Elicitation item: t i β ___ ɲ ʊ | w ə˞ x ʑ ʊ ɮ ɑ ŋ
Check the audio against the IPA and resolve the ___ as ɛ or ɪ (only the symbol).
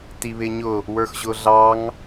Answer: ɪ